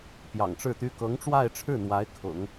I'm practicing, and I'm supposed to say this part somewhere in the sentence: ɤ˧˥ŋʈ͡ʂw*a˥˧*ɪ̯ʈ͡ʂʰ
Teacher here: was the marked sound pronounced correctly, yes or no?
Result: yes